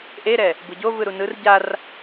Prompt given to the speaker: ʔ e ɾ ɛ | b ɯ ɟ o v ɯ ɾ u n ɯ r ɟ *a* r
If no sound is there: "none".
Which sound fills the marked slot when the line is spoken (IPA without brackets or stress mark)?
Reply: a